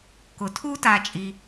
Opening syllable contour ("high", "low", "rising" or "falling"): low